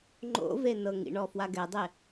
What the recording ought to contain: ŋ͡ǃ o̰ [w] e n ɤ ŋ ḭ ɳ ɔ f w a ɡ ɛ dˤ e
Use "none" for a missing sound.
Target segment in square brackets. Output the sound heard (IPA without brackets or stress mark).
v